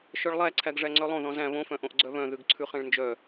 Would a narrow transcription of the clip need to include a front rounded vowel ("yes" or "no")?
yes